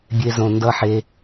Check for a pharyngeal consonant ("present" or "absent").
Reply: present